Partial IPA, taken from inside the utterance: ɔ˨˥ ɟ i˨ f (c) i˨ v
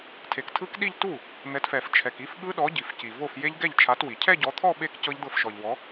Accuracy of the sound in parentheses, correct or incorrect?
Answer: correct